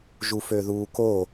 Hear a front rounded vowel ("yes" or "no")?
yes